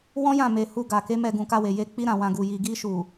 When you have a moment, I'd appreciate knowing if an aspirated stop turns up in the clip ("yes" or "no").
no